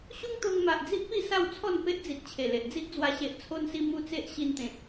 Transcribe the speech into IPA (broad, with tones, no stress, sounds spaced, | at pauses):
ɕ u˦ ŋ t̪ o˧ ŋ m a˨ ʔ d͡z i˦ ʔ p i˥˧ s a˥˧ w t͡sʰ ɔ˥˧ n p e˦ ʔ d͡z i˨ t̚ t͡ɕʰ e˨˩ l e˨ ʔ d͡z i˦ ʔ d͡z w a˧ ɕ e˨ ʔ t͡sʰ o˧ n s i˧ m u˧ t͡s e˦ ʔ ɕ i˧ n t̪ ẽ˨ t̚